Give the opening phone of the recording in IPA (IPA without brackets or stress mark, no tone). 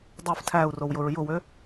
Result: dˤ